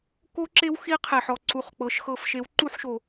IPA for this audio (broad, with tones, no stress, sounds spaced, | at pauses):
k o˦˥ ǁ e˦˥ w x i˦˥ qʰ e˩ ħ ɔ˩ ǀ u˩˧˩ χ k͡p ɤ˩˧˩ ʃ x ɤ˧˩˧ f ʃ e˨˥ w ǃ u˥˧ ħ ʃ o˩